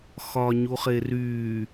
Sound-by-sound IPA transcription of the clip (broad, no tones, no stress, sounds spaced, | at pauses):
x ɒ ɲ u χ e r yː